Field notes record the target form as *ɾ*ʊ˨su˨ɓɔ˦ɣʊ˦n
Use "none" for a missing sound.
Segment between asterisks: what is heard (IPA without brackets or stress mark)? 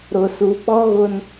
ɾ